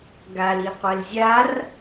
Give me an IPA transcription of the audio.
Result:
ɡ a l i qʷ ɛ l zʲ a r

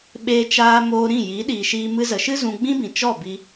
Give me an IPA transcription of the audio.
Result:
ɓ eː˧ t͡ʃ aː˧ m oː˧ ɾ ĩ˦˨ j i˨˦ ɗ iː˨ ʃ iː˧ m ɨ˧ z ə˨ ʃ ɨ˦ z ũ˧ ɡ͡b ĩ˦ b ĩ˨ t͡ʃ ɔ˦˨ b i˧

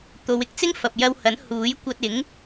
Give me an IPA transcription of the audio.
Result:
t̪ o˨˧ w ɪ˧ k̚ t͡s ɪ˥ ŋ f ɐ˨ p̚ j ɐ˧ w h ɐ˨˥ n h uː˨˥ j kʷ ɐ˧ t̚ ɪ˨˥ ŋ

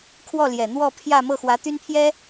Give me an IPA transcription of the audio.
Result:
kʰ w ɔ˥˩ l j ɛ˨˩ n̪ w ɔ˥˧ pʰ j ä˥˧ m ɤ˥˩ x w ä˧˥ t̪ y˥ n pʰ j ɛ˥

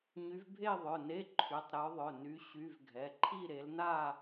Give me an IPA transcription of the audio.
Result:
ɲ y˨˦ v bʱ e˥˧ ðˤ œ˩˧˩ n e˧˥˧ ǃʰ y˩˧˩ tˤ ɾ œ˨˦ ðˤ œ˩˧˩ n y˨˦ ɕ y˧˥˧ v ɡʱ ɛ˩˧˩ ǃʰ i˥˧ ɾ e˨˦ l n a˥˧

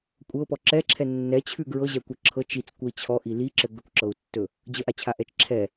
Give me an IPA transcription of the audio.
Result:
kʷʼ ɤ p ɔ ǁ ɛ ǁʰ ɛ nː ɛ t͡ɕʰ ʉ ɡ ɹ ɤ ʑ ɛ kʷ ə ǁʰ ɤ t͡ʃ i t͡s kʷ ə i̯ t͡ɕʰ ɔ ʔ i l i ǁ ɘ ɡ ə kʷ ǁ ɤ u̯ tː ɵ | d͡ʑ ə ʔ a t͡ɕʰ a ʔ ɛ t͡ʃ ǁʰ ɛ

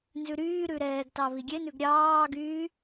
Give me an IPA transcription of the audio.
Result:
n z ʉ ɾ yː ɾ ʉ ɾ ɛː ɡ t ɑ β i ɡʲ e n ʉ ɡ ɾʲ ɑː ɡ yː

